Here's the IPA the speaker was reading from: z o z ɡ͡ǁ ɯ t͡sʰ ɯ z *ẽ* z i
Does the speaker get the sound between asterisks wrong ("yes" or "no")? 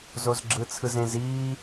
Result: no